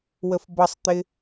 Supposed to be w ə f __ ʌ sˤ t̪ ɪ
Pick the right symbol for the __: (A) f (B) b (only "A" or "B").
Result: B